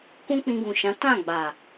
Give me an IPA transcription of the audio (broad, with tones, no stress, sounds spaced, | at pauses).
k ũ˦ k͡p ĩ˧ ɡ ũ˨ ʃ ã˨˦ t ã˦˨ ɡ͡b a˨